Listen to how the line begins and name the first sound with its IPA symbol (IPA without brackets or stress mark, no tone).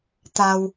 t̪